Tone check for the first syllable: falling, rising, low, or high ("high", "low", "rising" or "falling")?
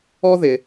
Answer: high